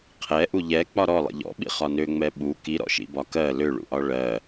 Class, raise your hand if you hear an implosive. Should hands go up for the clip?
yes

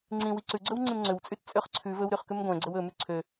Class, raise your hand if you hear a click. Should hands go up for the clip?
yes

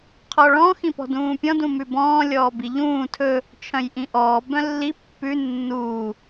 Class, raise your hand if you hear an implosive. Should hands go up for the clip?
no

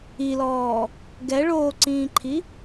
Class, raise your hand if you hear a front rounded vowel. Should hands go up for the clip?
no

